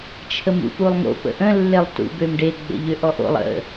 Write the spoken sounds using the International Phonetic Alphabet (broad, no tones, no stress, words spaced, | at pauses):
t͡ʃʰəmṵpulˠŋo̰ pə̰ʔə̃ lːelˠtṵbømɖe ɡ͡bə̰ʎøʔɔʔo̰lˠ ə̰